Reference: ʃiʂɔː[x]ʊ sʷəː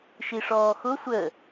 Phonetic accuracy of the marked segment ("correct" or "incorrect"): correct